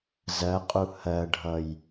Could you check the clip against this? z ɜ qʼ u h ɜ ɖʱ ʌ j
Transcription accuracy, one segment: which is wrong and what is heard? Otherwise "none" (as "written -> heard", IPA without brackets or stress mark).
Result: none